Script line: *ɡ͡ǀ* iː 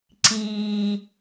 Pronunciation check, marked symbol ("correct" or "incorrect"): incorrect